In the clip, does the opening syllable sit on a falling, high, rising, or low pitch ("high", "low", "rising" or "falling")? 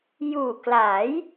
low